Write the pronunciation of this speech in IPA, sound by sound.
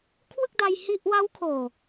kʰ w ɯ˥˩ k̚ d a˧ j h i˥˩ ʔ w a˦˥ w kʰ oː˨˩

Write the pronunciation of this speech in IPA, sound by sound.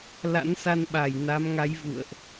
l a̰˧˥ n s a˧ n ɓ a˧˩ j n a˨˦ m ŋ a˨˦ j v ṵ˧˨ ə̯ ʔ

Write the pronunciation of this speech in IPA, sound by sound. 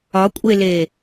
ɒ kʷʼ e l e

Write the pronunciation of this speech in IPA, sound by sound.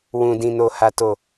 w ũ˨ d ĩ˨ n o˨ h a˨ t o˨

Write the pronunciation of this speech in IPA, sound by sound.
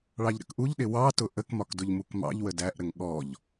ɭ ɑ ʎ ɾ ə̰ k ʔ u ʎ ɗ ɪ w ɑ t ʊ ʔ ə k m ɒ k d ʊ ʎ m u k m ɑ̰ ʎ w ə d æ ʔ ɾ ə ŋ ɠ ɔ ʎ

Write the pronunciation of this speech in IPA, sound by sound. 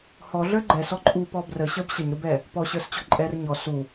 h ɔ ɮ ə˞ ɡ͡ǃ ɛ s ɔ ǃʼ u p ɔ b r ə ɕ ə˞ b ɕ ə ɲ ɾ u b ɛ | p ɔ ɕ ə˞ s t͡ɕ ɔ ǃʼ ɛ r ɲ ɔ s u

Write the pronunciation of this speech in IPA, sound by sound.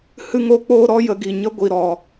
h ɨ˦ ŋ o˦ k͡p oː˦ ɾ ɔ˦ j ə˨˦ ɡ i˨ ɲ ə˦ ɡʷ i˨ ɾ ɔ˨

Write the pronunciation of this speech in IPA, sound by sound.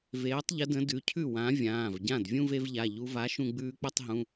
v eː˨˥ tˤ ʎ ə˨˥ d ə̃˨˥ d ʉ˩˧˩ cʰ ʉ˥˩ w ã˨˥ vʲ ãː˩˧˩ v ɟ ã˥˩ d vʲ ũ˥˧ v e˧ v ʎ a˩˧˩ ʎ u˧ v a˨˥ ʃ ũ˧ ɡ͡b ʉː˧ k͡p ə˥˧ tˤ ɦ ũ˩˧˩

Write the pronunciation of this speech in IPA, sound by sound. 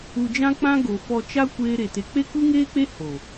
u˧ d͡ʒ ã˦ k͡p ã˦ ɡ o˨ f ɔ˧ t͡ʃ a˦ kʷ eː˦ ɾ e˧ t e˧ k͡p e˦ k u˦ ŋ eː˦ k͡p e˦ h o˨

